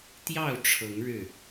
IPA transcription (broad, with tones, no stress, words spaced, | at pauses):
t̪jɑ˥˨ʊ̯ʈ͡ʂʰɤ˨˦ŋ ɻɻ̩˥˨